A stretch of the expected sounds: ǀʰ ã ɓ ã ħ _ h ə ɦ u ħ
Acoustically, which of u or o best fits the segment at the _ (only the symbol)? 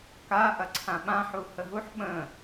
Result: u